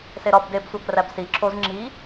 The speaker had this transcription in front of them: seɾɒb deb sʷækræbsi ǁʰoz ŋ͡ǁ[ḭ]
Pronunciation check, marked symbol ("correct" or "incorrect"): incorrect